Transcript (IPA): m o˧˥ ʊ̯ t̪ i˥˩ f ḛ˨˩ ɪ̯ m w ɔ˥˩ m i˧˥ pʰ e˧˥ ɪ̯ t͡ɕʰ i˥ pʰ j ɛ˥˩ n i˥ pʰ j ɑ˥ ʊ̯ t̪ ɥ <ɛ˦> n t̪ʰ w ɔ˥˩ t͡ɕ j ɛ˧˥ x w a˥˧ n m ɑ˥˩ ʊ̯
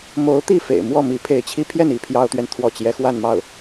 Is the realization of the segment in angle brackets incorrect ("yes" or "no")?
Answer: yes